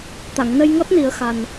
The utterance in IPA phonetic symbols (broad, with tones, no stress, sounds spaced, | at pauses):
t̪ a˨˩˨ ŋ n ə˧ j ŋ ɔ˦˥ t̚ n i˨˩˦ ə̯ x a˨˩ n